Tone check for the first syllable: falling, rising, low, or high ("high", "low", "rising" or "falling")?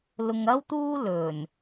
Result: low